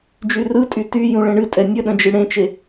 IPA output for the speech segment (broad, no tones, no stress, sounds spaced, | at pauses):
d͡ʒ y r ɯ tʼ y t y j ũ ɭ ẽ ɳ ɨ tʼ ɛ nʲ ə ɗ ə̃ d͡ʒ ɨ ɽ ẽ t͡ʃ e